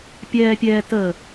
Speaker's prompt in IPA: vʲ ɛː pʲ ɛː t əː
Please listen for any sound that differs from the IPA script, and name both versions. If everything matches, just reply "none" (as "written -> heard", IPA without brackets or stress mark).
vʲ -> pʲ